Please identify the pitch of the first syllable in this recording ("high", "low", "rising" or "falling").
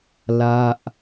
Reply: falling